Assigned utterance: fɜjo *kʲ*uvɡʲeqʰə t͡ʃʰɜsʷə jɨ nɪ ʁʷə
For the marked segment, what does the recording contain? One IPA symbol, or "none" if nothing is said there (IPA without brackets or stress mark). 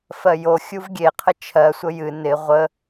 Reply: xʲ